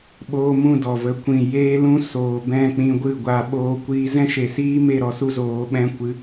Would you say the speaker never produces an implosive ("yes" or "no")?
no